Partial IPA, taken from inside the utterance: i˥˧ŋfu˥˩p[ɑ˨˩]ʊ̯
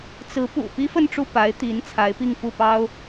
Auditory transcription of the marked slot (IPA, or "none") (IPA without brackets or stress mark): ɑ˥